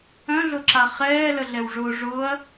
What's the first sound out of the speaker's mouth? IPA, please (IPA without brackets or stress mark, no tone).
œ̃